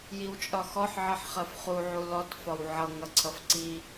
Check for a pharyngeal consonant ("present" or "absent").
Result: present